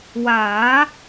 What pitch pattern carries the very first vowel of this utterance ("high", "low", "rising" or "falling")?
rising